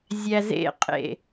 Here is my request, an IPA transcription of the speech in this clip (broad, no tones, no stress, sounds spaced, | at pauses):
zʲ æ z ḛ qʼ ḛ